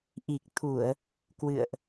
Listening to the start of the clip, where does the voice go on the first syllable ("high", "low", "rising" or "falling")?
low